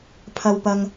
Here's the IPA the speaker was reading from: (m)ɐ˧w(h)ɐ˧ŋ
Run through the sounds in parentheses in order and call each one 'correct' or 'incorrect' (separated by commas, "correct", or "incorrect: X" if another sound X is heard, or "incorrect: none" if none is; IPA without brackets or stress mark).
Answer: incorrect: pʰ, incorrect: p